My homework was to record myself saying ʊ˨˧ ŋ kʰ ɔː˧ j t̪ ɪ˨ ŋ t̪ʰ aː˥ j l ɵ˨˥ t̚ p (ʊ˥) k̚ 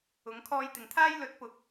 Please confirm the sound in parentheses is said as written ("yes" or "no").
no